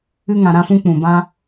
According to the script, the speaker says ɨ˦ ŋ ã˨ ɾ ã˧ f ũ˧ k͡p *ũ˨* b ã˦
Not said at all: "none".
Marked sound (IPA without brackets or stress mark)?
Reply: ũ˨